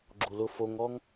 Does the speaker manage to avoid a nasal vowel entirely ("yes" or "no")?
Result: yes